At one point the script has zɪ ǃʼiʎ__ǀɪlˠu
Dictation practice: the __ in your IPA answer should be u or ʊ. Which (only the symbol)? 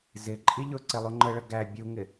ʊ